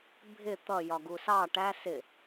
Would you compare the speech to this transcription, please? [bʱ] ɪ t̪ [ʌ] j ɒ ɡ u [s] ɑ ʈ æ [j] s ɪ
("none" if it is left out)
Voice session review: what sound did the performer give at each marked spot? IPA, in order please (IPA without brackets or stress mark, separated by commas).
bʱ, ʌ, s, none